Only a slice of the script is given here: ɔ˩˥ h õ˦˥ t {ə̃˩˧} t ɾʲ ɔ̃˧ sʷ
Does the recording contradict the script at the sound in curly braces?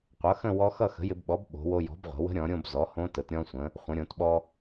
yes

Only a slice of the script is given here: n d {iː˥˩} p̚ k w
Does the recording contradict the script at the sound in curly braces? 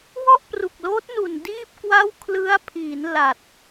no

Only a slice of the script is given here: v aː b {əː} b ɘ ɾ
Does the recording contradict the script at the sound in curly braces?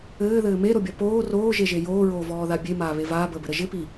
no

